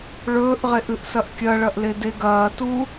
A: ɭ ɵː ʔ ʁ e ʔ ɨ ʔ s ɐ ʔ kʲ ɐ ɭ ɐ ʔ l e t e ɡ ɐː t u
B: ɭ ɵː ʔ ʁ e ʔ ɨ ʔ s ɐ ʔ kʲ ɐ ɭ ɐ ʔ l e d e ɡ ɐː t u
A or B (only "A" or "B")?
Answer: B